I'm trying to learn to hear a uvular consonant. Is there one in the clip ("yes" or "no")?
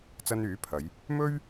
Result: no